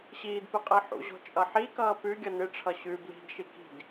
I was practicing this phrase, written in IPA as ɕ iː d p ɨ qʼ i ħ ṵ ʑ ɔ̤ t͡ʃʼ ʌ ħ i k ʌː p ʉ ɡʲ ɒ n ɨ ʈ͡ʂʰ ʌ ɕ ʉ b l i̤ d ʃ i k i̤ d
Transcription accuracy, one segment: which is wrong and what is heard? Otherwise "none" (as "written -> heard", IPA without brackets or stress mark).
ɒ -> ʌ